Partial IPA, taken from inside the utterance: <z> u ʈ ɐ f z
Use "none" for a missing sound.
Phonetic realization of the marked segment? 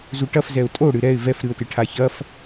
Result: z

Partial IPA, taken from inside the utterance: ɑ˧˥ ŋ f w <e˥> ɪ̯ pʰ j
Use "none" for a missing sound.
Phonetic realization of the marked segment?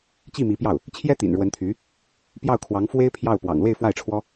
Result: e˥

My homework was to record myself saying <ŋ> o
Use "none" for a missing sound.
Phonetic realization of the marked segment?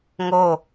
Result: ŋ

